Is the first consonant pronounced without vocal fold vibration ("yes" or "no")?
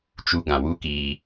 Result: yes